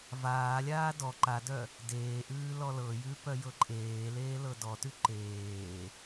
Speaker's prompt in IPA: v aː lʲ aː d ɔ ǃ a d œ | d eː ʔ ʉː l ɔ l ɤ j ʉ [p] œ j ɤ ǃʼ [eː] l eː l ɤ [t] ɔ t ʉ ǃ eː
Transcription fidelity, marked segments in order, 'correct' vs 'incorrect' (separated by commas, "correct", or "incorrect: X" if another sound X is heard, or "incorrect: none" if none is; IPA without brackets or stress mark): correct, correct, incorrect: d